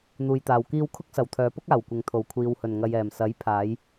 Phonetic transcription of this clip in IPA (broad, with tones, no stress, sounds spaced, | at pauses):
n̪ uː˨ j t̪ aː˨ w k iː˧ w kʰ ʊ˥ k̚ s ɐ˨ w t̪ʰ œː˨˧ p ʊ˥ k̚ aː˨˩ w kʷ ɪ˨ ŋ t̪ʰ o˨˩ w kʷʰ iː˨ w h ɵ˨˩ n ŋ ɐ˨ j ɛː˨˩ m s ɐ˨˥ j pʰ aː˨˧ j